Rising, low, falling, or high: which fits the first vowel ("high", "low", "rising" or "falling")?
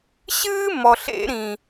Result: high